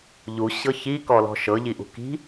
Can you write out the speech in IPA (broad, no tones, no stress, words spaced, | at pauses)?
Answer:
ʎu ɕɤçikɔlɔ̤ ʃɤʎiʔṳ ki̤